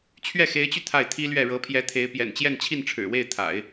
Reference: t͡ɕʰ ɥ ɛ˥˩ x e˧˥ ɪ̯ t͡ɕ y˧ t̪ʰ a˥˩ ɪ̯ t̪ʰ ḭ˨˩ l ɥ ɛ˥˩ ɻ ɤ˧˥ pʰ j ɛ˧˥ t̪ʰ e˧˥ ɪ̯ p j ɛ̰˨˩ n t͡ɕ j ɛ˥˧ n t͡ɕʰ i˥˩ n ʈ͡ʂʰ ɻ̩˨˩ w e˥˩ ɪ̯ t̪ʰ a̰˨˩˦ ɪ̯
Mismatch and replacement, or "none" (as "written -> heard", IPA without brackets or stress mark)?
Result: ḭ˨˩ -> i˥